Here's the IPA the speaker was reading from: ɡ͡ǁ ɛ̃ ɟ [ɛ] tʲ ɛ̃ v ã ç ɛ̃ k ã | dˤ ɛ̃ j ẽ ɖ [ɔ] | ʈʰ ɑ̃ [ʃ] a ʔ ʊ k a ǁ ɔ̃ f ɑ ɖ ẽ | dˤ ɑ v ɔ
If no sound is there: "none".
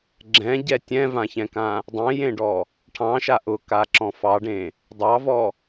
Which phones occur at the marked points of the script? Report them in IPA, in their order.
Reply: ɛ, ɔ, ʃ

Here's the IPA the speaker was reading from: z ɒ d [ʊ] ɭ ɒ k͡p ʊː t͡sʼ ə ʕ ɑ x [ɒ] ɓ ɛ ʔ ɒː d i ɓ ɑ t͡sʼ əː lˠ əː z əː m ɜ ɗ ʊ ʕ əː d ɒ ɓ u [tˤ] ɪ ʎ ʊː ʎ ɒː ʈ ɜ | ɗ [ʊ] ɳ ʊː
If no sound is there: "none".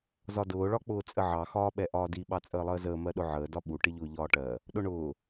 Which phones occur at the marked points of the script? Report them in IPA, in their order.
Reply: ʊː, ɒː, ʈ, ʊ

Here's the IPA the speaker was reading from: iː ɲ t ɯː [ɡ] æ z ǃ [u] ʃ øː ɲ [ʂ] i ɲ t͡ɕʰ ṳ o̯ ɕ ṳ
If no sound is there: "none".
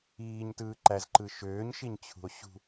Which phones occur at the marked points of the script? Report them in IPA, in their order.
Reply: ǃ, ɯ, ʃ

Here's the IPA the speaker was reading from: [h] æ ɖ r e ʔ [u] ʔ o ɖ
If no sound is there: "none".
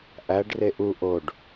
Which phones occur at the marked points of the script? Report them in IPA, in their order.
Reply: ʔ, u

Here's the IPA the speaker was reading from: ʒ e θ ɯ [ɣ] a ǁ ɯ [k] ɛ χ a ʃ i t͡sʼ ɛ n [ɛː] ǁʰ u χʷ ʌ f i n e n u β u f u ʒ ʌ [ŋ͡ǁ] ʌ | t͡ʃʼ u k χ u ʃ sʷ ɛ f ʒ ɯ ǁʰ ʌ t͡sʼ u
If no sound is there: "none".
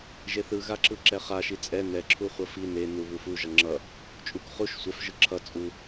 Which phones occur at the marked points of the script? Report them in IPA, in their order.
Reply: ɣ, ǁ, ɛ, ŋ͡ǁ

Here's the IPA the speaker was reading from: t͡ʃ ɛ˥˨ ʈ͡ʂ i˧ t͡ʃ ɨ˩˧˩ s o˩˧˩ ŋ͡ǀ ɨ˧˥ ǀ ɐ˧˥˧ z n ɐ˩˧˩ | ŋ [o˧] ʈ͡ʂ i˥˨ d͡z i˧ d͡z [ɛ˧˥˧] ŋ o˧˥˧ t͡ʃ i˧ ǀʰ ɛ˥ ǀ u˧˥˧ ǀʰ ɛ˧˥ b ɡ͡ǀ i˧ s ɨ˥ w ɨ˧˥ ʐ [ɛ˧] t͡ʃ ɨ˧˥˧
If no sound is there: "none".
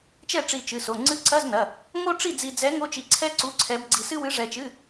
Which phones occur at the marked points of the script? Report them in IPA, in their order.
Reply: o˥, ɛ˧˥, ɛ˧

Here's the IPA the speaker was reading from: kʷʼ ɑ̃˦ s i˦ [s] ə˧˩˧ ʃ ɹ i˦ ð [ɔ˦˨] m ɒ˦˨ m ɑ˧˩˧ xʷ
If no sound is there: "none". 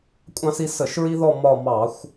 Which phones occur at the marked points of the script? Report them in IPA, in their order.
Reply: s, ɔ˦˨

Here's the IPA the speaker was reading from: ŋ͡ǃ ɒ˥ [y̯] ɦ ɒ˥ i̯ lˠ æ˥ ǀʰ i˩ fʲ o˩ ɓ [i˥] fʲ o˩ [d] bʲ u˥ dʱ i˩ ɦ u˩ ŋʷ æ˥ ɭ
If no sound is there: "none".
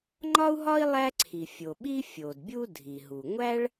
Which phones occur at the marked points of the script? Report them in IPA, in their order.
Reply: u̯, i˥, d

